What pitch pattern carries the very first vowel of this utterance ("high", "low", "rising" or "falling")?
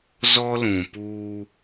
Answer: high